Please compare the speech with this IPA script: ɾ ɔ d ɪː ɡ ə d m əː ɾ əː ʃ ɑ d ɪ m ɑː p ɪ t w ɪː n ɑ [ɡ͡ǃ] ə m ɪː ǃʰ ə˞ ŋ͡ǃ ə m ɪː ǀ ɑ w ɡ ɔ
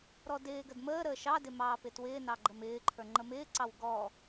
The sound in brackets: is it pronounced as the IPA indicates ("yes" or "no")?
yes